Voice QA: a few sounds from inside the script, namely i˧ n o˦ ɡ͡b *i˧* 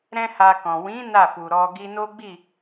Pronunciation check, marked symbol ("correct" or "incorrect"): incorrect